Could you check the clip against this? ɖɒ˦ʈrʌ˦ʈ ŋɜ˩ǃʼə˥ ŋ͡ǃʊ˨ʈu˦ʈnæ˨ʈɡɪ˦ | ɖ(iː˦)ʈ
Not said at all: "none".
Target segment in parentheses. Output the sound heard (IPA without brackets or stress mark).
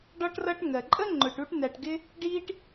iː˦